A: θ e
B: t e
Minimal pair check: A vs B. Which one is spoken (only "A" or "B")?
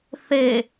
A